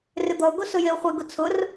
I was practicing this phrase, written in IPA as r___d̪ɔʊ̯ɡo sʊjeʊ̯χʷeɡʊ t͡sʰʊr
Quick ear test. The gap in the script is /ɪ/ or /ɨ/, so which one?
ɪ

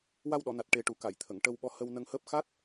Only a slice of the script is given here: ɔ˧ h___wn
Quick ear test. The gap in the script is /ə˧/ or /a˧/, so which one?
ə˧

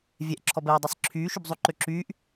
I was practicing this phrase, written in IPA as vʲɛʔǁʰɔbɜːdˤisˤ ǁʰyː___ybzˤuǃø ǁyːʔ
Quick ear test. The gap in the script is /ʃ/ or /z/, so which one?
ʃ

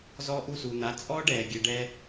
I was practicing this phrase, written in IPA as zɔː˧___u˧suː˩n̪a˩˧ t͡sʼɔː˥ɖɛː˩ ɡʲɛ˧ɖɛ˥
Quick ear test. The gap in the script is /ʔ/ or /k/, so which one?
ʔ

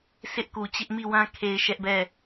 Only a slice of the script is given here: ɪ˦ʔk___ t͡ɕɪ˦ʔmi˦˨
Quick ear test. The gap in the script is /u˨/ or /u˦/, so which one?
u˨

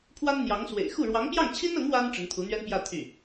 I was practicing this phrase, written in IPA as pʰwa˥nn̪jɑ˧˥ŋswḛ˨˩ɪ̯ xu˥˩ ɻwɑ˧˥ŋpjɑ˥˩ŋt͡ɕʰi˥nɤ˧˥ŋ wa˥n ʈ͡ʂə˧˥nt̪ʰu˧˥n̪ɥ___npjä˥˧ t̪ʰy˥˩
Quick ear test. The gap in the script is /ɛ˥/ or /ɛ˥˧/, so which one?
ɛ˥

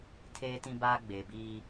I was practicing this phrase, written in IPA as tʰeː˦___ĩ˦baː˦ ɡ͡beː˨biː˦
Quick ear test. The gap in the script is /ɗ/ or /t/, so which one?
t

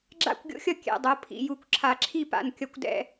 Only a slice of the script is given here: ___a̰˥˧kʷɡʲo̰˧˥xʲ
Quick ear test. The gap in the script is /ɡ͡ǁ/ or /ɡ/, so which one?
ɡ͡ǁ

